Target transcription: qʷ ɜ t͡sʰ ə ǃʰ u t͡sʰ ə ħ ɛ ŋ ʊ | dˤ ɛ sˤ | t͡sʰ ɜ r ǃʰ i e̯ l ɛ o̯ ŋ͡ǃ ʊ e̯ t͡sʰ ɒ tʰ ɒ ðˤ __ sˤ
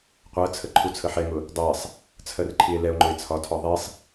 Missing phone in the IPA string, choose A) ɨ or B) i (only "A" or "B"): B